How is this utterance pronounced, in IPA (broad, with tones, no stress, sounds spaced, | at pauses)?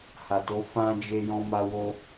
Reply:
h a˨ t o˨˦ f ã˦ d͡ʒ e˦ j ɔ̃˦ m a˦ w o˦